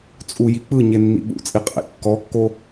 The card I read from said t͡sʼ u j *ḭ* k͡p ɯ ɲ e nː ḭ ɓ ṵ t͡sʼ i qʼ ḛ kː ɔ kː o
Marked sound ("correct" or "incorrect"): incorrect